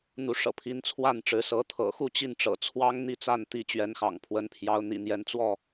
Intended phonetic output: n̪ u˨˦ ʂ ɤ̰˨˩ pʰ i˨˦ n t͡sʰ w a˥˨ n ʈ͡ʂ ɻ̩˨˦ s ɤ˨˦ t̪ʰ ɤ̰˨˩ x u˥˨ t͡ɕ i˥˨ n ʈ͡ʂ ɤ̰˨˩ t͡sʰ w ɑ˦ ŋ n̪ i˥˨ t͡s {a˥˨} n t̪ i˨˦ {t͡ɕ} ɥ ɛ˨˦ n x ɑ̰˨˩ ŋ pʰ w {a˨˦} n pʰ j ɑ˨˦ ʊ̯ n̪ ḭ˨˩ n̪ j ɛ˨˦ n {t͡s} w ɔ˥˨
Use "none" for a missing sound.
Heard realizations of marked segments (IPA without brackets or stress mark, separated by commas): a˥˨, t͡ɕ, ə˨˦, t͡s